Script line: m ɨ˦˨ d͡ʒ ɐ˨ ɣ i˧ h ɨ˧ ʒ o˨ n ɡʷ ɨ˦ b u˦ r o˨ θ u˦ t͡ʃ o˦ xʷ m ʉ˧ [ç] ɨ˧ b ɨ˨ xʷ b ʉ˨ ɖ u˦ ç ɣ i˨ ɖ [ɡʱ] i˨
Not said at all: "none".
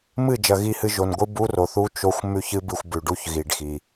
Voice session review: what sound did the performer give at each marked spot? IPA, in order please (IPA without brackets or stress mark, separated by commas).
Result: ç, x